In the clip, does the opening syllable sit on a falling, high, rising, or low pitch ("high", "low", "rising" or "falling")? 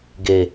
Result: low